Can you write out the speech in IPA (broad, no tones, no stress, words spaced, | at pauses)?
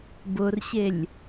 bʊrɕelʲ